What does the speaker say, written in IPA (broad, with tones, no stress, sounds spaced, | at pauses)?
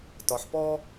t ɒ˩˧ ħ p ɔ˥